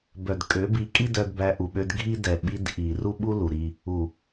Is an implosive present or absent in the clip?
present